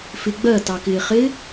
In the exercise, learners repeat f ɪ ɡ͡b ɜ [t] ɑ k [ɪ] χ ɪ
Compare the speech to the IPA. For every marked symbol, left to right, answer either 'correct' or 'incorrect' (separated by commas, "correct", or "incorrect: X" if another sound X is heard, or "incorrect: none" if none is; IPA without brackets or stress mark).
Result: correct, incorrect: ɪː